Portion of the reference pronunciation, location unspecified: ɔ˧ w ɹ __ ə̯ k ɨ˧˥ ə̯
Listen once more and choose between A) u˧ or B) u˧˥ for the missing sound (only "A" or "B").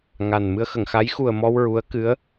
B